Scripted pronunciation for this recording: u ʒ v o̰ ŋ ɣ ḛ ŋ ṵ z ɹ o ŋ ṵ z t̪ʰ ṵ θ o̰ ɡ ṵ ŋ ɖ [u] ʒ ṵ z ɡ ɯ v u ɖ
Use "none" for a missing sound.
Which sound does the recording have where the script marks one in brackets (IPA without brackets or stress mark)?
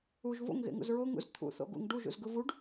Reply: u